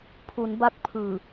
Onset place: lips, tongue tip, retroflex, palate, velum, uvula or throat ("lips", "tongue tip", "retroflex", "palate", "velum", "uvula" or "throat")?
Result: lips